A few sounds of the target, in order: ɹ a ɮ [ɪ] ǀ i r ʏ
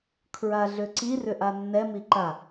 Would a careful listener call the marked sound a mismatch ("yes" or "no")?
yes